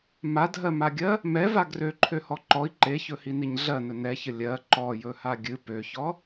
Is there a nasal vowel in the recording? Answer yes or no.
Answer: no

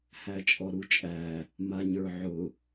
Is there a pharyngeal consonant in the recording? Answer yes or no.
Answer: yes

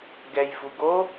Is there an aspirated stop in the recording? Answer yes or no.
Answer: no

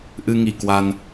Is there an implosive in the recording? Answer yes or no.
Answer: no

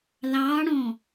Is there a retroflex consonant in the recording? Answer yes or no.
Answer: yes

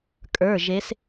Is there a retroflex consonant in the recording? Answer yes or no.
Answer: no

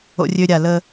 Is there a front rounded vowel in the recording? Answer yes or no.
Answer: yes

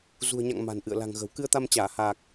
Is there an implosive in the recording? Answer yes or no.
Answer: no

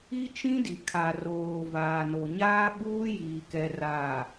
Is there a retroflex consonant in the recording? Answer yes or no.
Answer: no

